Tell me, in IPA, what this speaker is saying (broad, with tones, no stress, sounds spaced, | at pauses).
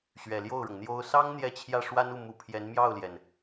ɕ ɥ ɛ˨˩ l j o˥˩ ʊ̯ ɻ ʊ˩ ŋ n̪ j o˥ ʊ̯ s ɑ˥ ŋ n̪ j ɛ˥˧ t͡ɕʰ j ä˥˩ ʂ w a˥ n u˥˩ m u˧˥ pʰ j ɛ˧˥ n m j ɑ˥˩ ʊ̯ l j ɛ˩ n